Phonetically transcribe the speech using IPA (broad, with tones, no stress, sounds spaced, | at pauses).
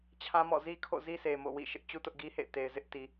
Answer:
t͡ɕʰ ã˦ m ɔ̰˦˨ z i˦ kʰ o̰˦˨ z i˦ s e˨ m o̰˦˨ w ḭ˦˨ ʃ ɪ˦ ʔ t͡ɕ u˦ t ʊ˦ ʔ ɡ i˦ h ḛ˦˨ ɪ̯ t e˨ ɪ̯ z ɪ˦ ʔ t i˨